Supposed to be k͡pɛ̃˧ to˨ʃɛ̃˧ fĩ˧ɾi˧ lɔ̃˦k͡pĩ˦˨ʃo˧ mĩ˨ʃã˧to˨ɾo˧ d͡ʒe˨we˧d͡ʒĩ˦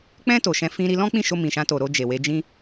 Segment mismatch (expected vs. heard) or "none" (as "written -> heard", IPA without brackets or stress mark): none